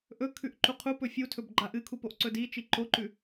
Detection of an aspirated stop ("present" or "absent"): present